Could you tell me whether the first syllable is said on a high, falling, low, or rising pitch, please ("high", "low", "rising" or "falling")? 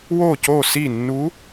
falling